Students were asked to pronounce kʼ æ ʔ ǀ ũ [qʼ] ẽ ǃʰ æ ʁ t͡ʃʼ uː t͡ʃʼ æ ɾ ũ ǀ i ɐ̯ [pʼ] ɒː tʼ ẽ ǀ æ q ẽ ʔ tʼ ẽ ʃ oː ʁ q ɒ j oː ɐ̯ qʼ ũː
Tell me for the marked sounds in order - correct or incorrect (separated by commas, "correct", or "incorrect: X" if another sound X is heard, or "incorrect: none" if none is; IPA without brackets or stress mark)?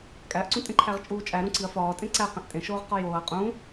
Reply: incorrect: tʼ, incorrect: f